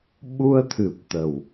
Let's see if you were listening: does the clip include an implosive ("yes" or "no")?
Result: yes